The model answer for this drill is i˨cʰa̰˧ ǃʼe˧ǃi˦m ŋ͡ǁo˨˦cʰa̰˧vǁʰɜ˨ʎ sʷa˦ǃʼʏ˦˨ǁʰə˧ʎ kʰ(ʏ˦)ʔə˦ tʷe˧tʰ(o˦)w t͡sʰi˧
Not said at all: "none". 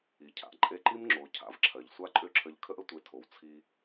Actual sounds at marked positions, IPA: ə˦, o˨

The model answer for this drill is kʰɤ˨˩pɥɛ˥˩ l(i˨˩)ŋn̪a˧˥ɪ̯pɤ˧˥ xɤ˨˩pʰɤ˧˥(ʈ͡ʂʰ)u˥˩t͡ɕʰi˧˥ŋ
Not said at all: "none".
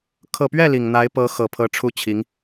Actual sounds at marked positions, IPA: i˨˩, ʈ͡ʂʰ

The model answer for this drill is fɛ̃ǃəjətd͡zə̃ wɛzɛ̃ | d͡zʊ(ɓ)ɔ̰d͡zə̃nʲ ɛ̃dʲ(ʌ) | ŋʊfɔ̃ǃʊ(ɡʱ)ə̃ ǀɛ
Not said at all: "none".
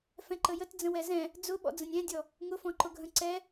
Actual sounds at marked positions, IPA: ɓ, ɔ, ɡʱ

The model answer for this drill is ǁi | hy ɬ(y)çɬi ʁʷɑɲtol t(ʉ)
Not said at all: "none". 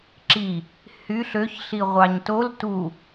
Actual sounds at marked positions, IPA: ø, u

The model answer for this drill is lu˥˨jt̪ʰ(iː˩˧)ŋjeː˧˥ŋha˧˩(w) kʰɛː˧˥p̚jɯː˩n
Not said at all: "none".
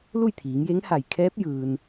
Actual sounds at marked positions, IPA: iː˩˧, j

